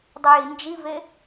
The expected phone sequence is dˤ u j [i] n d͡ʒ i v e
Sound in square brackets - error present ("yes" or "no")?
no